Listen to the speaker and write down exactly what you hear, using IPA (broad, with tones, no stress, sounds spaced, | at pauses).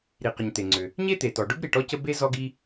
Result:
ɾ i˩ q ə˩ ɲ t̪ e˩ ŋ͡ǀ ʏ˩ | ɲ e˥ t̪ e˩ t ɔ˩ ɖ ʊ˥ b ɾ i˩ ʈ ɔ˥ c ə˥ b e˥ z ɔ˥ ɡ i˥